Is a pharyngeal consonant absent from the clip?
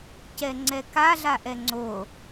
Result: yes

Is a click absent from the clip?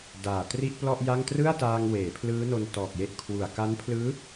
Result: yes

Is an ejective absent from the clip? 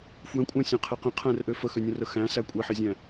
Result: no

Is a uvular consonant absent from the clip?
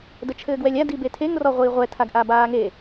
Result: no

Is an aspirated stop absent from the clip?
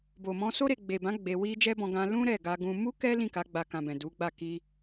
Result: yes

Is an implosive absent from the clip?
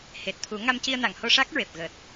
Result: yes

